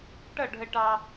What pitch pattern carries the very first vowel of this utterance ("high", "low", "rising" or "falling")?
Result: falling